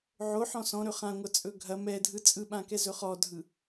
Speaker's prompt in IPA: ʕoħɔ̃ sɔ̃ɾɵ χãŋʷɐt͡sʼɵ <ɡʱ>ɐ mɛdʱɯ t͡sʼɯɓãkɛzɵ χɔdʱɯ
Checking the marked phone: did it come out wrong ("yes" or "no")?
no